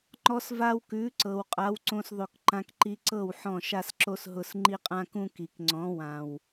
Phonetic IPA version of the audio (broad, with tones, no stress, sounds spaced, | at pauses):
ŋ͡ǃ ɔ˦ s v a˦ w k ʉ˨˦ ǀ ɤ˨ w qʼ a˨˦ w ǀ õ˧ s ðˤ ʉ˨ k ǃ ã˧ k ǃ i˧ ǀ ɤ˦˨ w ħ ɔ̃˦˨ ʃ a˦ s ǁ o˦ s ɦ ʊ˧ s ŋ͡ǃ i˦ qʼ ã˦ k ũ˦ k i˨ k ŋ͡ǀ ɔ̃˨˦ w ã˨ w